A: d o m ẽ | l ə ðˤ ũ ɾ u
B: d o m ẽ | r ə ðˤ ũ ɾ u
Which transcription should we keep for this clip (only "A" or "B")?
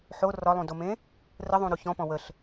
B